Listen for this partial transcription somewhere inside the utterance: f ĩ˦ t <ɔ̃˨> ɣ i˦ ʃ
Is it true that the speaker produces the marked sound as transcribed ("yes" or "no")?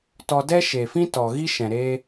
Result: no